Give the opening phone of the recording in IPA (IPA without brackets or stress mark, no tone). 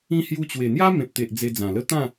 ĩ